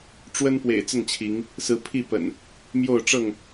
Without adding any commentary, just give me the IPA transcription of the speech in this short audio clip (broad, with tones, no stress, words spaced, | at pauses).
ʈ͡ʂwə˦npwḛ˨˩ɪ̯ t͡sə˥˨nt͡ɕʰi˨˦ŋ | sɹ̩˨˦pʰi˥˨pə̰˨˩n | mjo˥˨ʊ̯ ʈ͡ʂɤ˥˨ŋ